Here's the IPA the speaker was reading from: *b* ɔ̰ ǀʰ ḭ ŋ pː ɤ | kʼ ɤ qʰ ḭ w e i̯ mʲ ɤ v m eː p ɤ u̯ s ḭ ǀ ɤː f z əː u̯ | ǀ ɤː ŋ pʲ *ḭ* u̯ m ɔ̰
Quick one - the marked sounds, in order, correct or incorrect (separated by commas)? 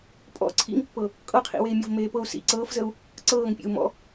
incorrect, incorrect